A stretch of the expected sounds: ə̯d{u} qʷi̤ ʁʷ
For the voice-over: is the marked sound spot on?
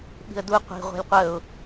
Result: yes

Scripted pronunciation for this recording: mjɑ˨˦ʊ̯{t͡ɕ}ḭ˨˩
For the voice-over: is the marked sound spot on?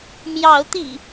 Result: no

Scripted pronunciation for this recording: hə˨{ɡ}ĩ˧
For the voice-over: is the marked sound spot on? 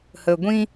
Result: no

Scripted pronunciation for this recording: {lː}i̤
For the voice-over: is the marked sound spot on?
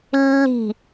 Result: yes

